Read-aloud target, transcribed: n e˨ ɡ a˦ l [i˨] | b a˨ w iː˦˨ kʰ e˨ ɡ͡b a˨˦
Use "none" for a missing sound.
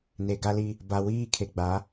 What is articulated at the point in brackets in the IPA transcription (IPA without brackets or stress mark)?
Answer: i˦